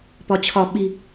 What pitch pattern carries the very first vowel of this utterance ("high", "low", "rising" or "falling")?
low